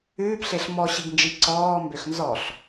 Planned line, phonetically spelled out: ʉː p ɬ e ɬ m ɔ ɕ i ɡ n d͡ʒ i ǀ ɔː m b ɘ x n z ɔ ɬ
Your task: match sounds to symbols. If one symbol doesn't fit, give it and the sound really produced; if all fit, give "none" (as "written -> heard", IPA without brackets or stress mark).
ɘ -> ø